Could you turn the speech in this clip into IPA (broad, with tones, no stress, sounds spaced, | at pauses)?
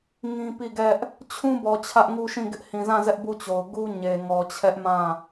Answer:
ŋ ĩ˦ p i˦˨ ɡ ɛ˦ ʔ | t͡ɕʰ ũ˦ b ɔ˨ t͡ɕʰ ä˦ ʔ ŋ u˦ ʃ ĩ˦˨ ɡ ɪ˦ ʔ h ĩ˨ z ã˦˨ z ɛ˦ ʔ b u˦˨ t͡ɕ o˨ ʊ̯ ɡ u˦ ɲ e˨ ŋ ɔ˨ t͡ɕʰ ɛ˦ ʔ m ã˦˨